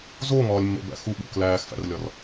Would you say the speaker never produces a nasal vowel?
yes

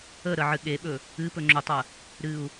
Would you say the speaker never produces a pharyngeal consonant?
no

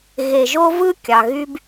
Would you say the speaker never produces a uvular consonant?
yes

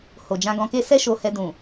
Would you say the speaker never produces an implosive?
yes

